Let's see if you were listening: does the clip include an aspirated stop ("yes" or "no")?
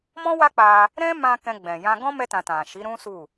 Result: no